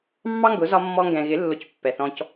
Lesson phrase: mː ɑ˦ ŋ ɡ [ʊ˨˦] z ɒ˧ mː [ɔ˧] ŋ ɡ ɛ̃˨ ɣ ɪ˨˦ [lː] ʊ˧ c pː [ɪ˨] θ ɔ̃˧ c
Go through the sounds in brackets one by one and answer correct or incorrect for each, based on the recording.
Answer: correct, correct, correct, incorrect: ɛ˨

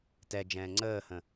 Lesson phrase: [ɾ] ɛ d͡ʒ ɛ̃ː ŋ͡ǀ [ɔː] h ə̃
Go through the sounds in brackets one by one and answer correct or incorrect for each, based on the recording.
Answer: incorrect: t, incorrect: əː

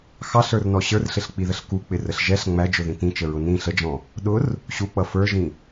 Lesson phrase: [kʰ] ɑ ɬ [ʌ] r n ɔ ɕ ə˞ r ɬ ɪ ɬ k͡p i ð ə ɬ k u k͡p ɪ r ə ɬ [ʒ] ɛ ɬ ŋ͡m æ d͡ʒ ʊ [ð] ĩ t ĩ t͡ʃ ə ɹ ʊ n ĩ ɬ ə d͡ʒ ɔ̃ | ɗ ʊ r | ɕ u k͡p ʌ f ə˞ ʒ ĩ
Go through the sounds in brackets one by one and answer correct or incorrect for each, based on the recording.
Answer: incorrect: x, incorrect: ə˞, correct, correct

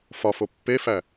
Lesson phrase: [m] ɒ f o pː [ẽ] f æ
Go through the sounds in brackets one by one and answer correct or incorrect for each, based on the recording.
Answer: incorrect: f, incorrect: e

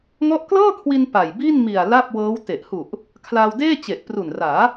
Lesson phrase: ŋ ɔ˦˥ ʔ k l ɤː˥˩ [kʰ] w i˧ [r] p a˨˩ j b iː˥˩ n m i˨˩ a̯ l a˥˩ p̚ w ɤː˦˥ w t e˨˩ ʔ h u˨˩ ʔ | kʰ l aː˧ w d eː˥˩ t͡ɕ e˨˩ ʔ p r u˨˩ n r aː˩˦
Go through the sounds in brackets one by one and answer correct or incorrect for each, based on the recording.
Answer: correct, incorrect: n

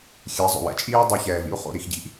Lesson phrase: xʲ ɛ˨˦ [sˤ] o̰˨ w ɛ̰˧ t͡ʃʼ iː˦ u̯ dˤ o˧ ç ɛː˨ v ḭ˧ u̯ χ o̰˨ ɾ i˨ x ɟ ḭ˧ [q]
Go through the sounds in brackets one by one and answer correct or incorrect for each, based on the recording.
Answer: incorrect: zˤ, incorrect: ʔ

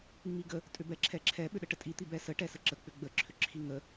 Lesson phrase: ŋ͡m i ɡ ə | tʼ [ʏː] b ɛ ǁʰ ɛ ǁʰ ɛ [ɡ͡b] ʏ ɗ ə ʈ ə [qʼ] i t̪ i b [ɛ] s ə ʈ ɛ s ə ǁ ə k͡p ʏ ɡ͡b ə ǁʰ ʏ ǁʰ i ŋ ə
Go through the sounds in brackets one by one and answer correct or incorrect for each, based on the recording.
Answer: incorrect: ʏ, incorrect: ɓ, incorrect: tʼ, correct

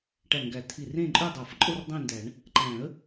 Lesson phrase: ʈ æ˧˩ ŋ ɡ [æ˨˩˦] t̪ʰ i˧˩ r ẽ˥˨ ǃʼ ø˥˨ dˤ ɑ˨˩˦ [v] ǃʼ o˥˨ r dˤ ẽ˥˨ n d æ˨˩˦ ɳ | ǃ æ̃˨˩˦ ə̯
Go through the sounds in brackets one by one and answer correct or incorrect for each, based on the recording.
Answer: correct, incorrect: f

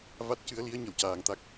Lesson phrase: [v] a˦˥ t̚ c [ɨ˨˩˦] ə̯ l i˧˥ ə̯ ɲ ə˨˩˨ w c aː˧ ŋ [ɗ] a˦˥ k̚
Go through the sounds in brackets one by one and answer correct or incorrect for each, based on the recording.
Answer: correct, incorrect: ɨ˧˥, incorrect: t̪

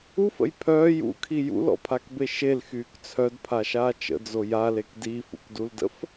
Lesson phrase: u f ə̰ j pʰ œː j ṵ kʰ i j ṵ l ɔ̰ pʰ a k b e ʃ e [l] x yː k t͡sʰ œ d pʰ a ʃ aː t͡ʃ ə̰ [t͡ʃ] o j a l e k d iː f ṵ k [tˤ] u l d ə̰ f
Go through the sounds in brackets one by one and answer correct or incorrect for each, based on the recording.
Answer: correct, incorrect: d͡z, incorrect: d

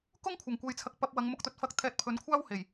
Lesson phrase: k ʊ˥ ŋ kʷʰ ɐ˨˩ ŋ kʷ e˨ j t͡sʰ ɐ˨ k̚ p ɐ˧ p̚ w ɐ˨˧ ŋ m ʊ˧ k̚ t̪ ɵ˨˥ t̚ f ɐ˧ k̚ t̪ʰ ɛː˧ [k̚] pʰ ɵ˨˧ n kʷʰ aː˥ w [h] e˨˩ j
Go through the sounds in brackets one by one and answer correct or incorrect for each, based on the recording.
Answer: incorrect: t̚, correct

